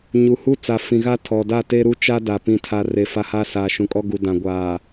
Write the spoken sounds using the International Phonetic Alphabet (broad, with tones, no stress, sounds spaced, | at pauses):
ɲ u˨ h u˦ t͡s a˨ f ĩ˨ ɣ a˦ tʰ ɔ˨ d a˦˨ t e˦ ɾ u˦ t͡ʃ a˦ d a˨ p ĩ˨ tʰ a˨ r e˨ f a˦ h a˦ s aː˨ ʃ ũ˨ kʼ ɔ˦ ɡ u˨ d ã˨ ɡʷ aː˨